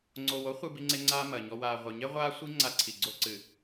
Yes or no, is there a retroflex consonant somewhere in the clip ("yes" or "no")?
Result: no